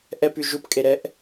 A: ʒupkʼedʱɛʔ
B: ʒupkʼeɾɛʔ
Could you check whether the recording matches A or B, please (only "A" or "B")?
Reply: B